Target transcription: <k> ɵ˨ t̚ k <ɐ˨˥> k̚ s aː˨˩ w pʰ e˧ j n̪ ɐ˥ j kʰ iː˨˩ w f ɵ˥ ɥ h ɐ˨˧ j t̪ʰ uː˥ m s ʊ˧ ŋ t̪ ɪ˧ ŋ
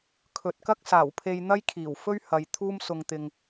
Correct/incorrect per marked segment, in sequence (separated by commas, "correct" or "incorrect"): incorrect, incorrect